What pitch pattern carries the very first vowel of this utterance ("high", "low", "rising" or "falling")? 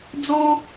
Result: high